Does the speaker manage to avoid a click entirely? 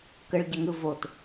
yes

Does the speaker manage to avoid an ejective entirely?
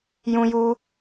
yes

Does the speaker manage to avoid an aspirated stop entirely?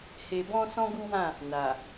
yes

